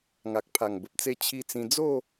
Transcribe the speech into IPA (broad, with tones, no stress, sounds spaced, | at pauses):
ŋ a˨ k̚ pʰ a˨˩ ŋ b ə˨ p̚ t͡s e˧ t͡ɕʰ i˧ t͡s ĩ˧ d͡z o˥˧